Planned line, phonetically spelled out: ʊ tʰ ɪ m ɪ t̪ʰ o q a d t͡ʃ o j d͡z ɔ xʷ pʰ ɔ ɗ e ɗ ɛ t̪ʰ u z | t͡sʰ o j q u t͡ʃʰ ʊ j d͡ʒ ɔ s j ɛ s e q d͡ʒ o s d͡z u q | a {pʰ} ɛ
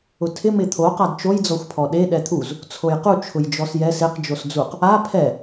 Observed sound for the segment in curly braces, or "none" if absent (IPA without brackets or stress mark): pʰ